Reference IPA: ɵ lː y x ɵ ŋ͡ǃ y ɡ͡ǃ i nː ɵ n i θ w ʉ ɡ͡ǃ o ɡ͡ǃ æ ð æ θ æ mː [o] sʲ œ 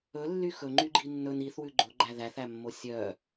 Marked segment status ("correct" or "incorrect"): correct